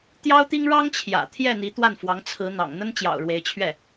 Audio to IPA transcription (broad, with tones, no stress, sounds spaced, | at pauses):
t̪ j ɑ˥ ʊ̯ t̪ i˥ ŋ ɻ ɑ˥ ŋ t͡ɕʰ j ä̰˨˩ t̪ʰ j ɛ˥˩ n̪ i˧˥ t̪ w a˥˩ n f w ɑ˧˥ ŋ t͡sʰ ɹ̩˧˥ n̪ ɑ̰˨˩ ŋ n̪ ə˥ n t͡ɕ j ɑ̰˨˩ ʊ̯ ɻ w e˧˥ ɪ̯ t͡ɕʰ ɥ ɛ˥˩